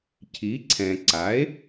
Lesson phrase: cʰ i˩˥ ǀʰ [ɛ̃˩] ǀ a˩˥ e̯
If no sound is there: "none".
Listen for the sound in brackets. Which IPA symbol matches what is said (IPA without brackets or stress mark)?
ɛ̃˩